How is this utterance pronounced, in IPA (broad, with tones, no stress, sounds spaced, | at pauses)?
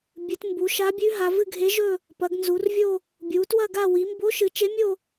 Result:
bʲ ɨ˩˧ t m b u˩˧ ʃ a˧˥ bʲ ʉ˧˥ ɦ a˩˧ v ɨ˥˧ ɡʱ e˧˥ ʒ ɵ˥˧ | p ɐ˩˧ ɡ n z u˩˧ r vʲ o˥˧ | bʲ u˩˧ t w ɐ˥˧ ɡ a˥˧ w i˩˧ m b o˧˥ ʃ ɨ˩˧ t͡ʃ e˧˥ mʲ o˥˧